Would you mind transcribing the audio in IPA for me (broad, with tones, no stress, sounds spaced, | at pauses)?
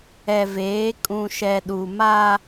ɛ˨ v eː˨˦ kʼ ũ˨ ʃ ɛ˨ ɗ u˨ m a˦